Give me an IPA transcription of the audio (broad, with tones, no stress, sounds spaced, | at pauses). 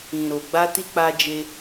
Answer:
ĩ˨ ɾ o˨ ɡ͡b a˧ t i˧ k͡p a˧ d͡ʒ e˧